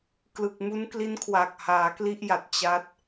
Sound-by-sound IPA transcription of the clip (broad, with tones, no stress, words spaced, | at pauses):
klɯ˨˩k̚mu˦˥nkli˦˥nkʰwa˨˩k̚ haː˩˦kli˦˥ʔja˨˩t̚ t͡ɕa˦˥t̚